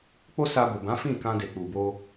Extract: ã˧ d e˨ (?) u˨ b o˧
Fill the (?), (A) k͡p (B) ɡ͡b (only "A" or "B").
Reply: A